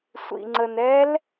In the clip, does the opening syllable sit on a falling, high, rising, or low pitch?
low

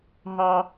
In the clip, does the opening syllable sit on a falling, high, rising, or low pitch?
high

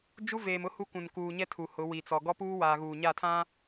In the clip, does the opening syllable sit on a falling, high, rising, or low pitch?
high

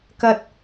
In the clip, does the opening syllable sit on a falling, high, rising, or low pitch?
high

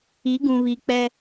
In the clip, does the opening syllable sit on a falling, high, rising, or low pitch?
rising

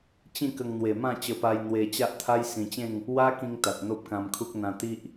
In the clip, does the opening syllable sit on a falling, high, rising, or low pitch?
falling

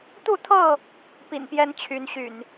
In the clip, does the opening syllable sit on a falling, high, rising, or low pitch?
falling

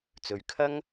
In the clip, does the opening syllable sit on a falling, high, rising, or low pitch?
low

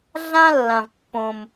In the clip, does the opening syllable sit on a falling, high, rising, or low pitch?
high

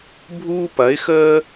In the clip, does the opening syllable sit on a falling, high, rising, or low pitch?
high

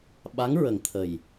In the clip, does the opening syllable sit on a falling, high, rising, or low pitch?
rising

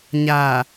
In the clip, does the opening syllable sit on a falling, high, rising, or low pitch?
low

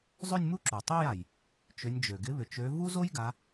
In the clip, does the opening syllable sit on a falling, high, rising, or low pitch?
falling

